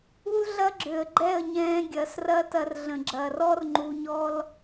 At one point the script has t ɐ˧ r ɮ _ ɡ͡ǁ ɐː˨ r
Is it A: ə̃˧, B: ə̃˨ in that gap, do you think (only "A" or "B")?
B